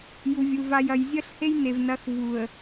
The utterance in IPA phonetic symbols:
ju˨vʲu˨ va˨jɐ˨j zʲɐ˦ɬhe˦jne˨vnɐ˨˦x vu˨ə̯

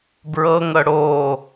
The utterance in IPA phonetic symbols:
bɹɤŋɤ ɽo

